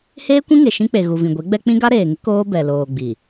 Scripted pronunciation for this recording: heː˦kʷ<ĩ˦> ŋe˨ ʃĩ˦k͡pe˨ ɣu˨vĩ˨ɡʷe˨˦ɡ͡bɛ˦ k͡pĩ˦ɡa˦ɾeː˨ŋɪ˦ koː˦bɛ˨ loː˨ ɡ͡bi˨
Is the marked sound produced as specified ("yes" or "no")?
yes